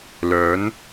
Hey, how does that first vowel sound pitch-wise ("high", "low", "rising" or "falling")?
rising